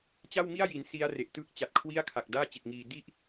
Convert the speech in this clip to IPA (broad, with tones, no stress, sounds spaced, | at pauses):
t͡ɕ a˥˩ w m i˥˩ a̯ j i˩˦ n s i˦˥ a̯ r e˨˩ ʔ t ɯː˥˩ k̚ t͡ɕ a˨˩ t̚ kʰ w i˥˩ a̯ kʰ a˨˩ k̚ d aː˥˩ t͡ɕ i˨˩ t̚ ŋ iː˧ d i˥˩ ʔ